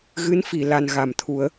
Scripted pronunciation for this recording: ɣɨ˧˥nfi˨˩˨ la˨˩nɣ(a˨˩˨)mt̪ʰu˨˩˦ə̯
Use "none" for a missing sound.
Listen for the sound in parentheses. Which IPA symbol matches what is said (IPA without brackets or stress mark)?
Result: a˨˩˨